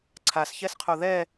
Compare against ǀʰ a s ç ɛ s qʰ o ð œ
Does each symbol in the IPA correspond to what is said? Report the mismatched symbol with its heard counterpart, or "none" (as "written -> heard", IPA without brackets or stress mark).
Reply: œ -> ɛ